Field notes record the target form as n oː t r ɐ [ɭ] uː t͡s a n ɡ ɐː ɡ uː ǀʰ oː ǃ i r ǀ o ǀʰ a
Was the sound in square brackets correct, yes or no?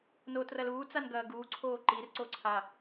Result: no